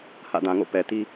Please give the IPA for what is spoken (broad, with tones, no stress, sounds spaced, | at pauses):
h ä̰˦˨ d ã˨ ŋ o̰˦˨ p ɛ˨ t i˦